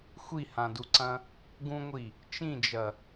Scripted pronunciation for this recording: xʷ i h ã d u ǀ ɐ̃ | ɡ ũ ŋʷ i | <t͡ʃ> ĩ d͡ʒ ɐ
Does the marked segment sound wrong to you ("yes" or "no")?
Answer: no